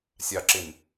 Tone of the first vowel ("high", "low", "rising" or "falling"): low